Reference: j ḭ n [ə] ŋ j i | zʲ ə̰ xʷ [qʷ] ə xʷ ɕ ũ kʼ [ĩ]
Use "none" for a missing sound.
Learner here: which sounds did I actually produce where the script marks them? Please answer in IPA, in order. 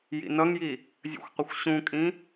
ʌ, qʷ, ĩ

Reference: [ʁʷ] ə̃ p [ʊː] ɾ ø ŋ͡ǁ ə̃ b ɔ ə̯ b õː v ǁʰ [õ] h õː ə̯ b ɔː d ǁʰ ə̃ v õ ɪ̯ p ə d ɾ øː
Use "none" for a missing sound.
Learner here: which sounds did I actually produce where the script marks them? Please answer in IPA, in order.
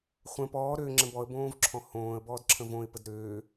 χʷ, ɔː, ɔ̃

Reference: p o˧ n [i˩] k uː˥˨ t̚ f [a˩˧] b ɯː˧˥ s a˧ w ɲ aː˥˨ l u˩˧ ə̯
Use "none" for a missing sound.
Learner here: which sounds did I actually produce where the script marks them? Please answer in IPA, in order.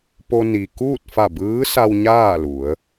i˩, a˧˩

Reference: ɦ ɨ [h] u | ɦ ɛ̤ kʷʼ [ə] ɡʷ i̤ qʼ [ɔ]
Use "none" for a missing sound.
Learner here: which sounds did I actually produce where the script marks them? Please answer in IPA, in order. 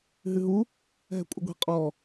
ɦ, ə, ɔ

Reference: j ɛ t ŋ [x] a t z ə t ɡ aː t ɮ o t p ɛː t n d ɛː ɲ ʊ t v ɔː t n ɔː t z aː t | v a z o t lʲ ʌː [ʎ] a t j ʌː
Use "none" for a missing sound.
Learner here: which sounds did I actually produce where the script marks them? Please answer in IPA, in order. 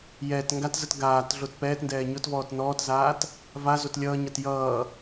ɡ, ɲ

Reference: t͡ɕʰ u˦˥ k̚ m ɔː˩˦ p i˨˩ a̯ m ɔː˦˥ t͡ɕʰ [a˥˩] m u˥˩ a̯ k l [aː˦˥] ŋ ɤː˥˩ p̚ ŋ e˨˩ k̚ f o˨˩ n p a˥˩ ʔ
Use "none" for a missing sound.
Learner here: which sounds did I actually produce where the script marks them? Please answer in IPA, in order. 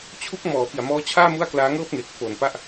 aː˥˩, aː˦˥

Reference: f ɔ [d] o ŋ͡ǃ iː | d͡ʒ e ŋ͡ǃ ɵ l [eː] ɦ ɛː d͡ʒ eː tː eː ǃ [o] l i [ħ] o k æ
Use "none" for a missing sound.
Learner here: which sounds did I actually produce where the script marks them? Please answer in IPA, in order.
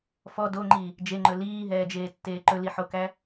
d, iː, ɵ, ħ

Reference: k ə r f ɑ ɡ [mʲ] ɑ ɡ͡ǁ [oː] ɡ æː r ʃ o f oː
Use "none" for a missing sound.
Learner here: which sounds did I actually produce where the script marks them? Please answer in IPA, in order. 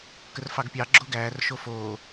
pʲ, o

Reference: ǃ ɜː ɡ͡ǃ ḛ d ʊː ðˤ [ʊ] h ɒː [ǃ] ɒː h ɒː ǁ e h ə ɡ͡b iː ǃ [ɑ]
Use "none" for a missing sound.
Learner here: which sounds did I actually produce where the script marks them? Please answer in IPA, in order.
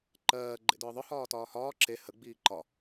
ʊ, t, ɒ

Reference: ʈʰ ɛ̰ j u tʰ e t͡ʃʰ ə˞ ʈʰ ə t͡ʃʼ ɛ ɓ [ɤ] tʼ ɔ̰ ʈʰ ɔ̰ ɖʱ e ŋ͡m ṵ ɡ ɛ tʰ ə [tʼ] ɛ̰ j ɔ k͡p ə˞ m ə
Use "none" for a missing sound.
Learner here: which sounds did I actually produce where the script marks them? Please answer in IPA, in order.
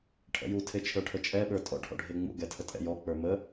ə˞, tʼ

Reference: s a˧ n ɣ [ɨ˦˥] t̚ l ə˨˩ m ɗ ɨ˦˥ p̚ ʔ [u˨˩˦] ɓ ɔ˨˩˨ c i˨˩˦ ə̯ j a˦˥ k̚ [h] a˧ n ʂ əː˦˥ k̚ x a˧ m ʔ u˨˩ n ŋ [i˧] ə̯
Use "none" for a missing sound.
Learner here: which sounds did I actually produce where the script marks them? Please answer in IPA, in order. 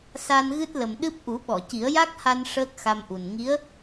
ɨ˦˥, u˨˩˦, h, i˧˥

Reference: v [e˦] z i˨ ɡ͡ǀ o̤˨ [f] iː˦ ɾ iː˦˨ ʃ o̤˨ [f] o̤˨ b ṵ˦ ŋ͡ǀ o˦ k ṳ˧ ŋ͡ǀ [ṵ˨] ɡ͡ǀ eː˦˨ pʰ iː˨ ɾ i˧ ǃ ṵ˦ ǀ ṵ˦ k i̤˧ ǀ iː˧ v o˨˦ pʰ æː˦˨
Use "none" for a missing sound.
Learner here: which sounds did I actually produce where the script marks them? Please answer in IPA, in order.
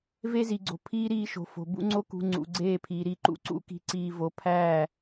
e˦, pʰ, f, ṵ˨

